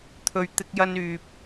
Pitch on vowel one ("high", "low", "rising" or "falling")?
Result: low